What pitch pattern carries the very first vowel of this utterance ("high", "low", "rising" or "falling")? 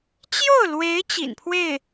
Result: falling